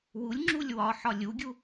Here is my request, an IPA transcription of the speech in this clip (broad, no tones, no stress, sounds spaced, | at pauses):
w u lʲ ŋ͡ǁ u lʲ w ɒ ħ ɒ lʲ u ɡʲ u